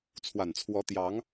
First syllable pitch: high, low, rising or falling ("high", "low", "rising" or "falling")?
low